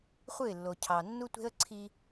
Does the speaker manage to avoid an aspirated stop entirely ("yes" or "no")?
no